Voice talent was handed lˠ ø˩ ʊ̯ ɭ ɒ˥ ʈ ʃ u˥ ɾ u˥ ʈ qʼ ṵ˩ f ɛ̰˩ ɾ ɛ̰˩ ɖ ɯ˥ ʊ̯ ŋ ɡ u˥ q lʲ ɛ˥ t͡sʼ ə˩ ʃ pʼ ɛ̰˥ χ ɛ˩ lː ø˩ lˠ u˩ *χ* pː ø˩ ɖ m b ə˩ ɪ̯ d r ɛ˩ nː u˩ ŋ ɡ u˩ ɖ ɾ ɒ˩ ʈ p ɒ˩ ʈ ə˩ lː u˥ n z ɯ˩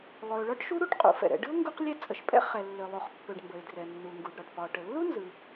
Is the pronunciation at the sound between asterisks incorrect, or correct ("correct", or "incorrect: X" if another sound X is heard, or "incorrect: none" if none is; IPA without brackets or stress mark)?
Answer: correct